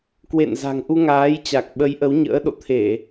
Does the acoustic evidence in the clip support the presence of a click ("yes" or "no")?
no